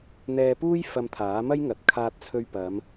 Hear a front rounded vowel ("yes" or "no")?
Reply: no